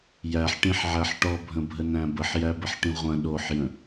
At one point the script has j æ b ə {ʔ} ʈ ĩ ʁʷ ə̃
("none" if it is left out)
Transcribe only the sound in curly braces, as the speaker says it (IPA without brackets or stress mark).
ħ